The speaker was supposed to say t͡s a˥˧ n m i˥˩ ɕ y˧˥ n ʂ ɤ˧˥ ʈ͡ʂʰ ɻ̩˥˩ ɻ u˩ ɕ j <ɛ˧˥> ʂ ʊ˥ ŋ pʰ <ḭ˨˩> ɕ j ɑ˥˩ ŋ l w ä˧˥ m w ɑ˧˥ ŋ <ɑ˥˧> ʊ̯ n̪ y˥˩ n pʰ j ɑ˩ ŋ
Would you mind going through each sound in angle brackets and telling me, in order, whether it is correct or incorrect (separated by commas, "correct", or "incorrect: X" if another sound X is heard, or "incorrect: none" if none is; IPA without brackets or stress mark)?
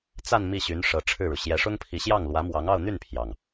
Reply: correct, incorrect: i˧˥, correct